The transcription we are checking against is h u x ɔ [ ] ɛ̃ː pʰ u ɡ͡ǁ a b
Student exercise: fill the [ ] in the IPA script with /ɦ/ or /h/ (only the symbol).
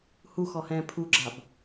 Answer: h